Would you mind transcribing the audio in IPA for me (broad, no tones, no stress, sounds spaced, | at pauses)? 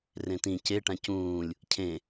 r ẽ t ĩ c e ʈ ã c ũː lʲ | cʰ ẽ